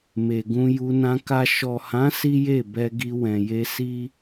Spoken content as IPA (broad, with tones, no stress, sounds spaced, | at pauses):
m e˨ ɡ ũ˧ j u˧ n ã˧ k a˨ ʃ ɔ˨ h ã˨˦ s i˦ j e˦˨ b ɛ˧ ɡ i˧ w ɛ̃˨ j e˧ s i˦